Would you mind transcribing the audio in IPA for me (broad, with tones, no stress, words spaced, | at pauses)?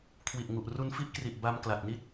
kʰwi˨˩ʔŋu˨˩ʔ ru˧nfi˥˩ʔkri˨˩ʔ ba˧m kla˨˩t̚ni˥˩t̚